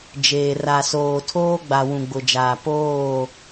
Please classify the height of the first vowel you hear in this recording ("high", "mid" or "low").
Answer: mid